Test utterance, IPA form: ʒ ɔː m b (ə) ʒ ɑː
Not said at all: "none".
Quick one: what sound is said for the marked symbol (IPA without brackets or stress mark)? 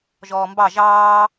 ɑ